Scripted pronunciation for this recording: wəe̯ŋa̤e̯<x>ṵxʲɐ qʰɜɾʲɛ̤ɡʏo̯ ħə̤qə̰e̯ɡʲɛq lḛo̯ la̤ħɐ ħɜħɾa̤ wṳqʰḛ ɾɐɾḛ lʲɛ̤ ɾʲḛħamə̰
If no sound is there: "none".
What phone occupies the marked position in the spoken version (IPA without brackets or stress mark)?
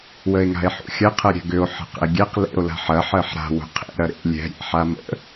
ħ